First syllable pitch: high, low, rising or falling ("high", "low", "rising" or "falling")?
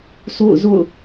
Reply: falling